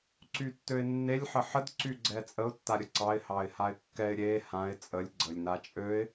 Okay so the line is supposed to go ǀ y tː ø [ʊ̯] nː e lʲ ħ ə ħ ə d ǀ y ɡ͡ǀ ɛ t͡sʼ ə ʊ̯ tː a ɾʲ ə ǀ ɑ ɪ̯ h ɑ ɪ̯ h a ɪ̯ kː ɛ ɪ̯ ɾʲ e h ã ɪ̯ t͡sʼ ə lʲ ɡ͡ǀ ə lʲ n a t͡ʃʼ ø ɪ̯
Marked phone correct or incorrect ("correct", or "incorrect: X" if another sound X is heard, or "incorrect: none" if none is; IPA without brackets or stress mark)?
incorrect: ɪ̯